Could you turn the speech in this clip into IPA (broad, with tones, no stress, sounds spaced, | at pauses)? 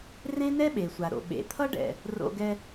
r ẽ˥ n ɛ˥ ɓ e˨ sʷ a˨ ɾ o̰˨ ɓ ḛ˨ t̪ʰ ʌ˥ ɖ ɛ̰˨ | r o̰˦ ɡ ɛ˦